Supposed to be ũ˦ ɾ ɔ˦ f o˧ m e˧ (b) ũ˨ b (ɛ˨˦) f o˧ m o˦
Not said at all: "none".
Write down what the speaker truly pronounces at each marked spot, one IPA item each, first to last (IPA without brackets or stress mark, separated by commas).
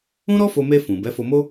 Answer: f, ɛ˨˦